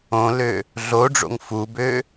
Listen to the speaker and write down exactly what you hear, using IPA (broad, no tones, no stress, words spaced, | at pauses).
õlø | ɮoɖ͡ʐo̰ŋ fubø